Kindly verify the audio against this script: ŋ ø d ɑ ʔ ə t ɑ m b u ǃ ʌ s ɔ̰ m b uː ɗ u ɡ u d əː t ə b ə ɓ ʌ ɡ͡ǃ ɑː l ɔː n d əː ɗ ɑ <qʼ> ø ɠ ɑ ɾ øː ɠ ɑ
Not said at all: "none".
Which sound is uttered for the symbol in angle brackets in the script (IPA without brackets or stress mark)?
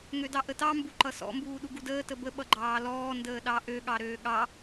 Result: ʔ